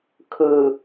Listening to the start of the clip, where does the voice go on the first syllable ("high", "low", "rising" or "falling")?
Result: low